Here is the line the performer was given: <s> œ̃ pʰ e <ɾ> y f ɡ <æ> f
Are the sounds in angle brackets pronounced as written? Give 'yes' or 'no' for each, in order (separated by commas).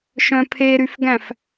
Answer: no, yes, no